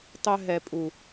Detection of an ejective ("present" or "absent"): present